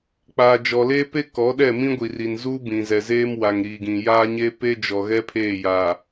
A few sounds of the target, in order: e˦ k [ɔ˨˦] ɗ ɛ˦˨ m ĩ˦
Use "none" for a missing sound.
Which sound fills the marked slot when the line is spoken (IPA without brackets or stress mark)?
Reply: ɔ˨˦